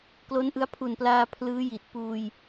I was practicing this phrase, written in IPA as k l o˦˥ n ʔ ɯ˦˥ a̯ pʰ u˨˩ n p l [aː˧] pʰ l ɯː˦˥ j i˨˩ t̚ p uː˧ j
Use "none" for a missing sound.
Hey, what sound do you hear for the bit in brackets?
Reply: aː˧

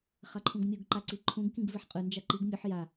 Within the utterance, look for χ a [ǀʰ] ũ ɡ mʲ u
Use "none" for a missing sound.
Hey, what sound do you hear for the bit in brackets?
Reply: ǃʰ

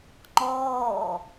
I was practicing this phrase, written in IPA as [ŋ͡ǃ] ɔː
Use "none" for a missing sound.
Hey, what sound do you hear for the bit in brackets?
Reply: ŋ͡ǃ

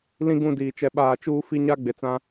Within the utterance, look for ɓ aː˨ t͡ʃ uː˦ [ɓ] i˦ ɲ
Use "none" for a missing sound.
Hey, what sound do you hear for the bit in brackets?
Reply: f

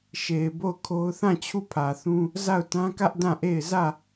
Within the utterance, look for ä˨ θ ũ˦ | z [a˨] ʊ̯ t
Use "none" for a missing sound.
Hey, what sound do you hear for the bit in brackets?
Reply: a˦˨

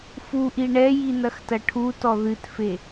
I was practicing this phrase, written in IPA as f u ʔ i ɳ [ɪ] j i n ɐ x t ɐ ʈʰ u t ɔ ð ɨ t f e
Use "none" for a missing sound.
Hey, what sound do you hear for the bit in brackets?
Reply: ɛ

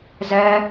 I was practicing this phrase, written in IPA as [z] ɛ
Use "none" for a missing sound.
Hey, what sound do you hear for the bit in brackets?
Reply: z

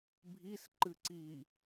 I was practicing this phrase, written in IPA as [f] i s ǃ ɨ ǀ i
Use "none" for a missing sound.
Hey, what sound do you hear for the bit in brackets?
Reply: bʱ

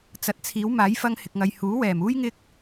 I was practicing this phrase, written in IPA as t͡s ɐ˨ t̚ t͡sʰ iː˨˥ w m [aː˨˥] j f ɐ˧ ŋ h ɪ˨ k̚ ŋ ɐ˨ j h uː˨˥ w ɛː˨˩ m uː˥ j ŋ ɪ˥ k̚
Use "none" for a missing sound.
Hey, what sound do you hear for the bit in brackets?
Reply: aː˨˥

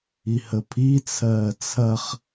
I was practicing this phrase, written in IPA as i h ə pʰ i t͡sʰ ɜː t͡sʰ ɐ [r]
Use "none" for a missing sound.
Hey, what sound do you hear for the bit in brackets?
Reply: χ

